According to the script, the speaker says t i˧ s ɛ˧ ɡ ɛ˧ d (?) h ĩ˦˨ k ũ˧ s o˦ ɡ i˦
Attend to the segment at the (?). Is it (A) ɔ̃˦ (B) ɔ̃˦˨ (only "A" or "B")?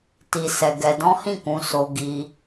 A